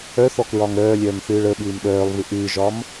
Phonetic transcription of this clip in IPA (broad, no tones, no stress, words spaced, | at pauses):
œθɔkɹɒŋ ɾœːlʲœːmθɨːɭ əɓɨːm ɗœːlˠvɨ ʔɨːʒɒːm